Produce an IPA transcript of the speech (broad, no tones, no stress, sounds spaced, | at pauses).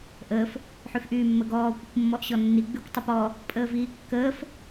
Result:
ʔ əː f | ħ y f ʔ yː mː ə ɡ ɔː kʷ ə kʷ mː ɔ ʔ ɕ ɔ nː i ɡ͡b y kʷ tˤ ə p ɔ | pʼ əː v iː kː əː f